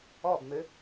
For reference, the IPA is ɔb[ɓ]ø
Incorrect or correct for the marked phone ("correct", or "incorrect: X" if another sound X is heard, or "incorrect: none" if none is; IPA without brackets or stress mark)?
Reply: incorrect: m